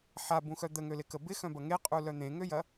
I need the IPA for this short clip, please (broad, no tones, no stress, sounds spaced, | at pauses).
ħ a b ũ x œ d̪ ə ŋ ø l ɪ k ə b ɪ x œ̃ b ɐ ŋ e qʼ u l œ n̪ ẽ ŋ ø j ɐ